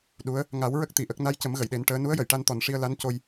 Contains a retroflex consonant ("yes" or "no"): yes